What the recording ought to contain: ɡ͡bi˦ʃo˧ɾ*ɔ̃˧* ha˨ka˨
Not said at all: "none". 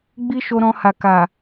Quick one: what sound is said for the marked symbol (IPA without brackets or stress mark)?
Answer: ɔ̃˧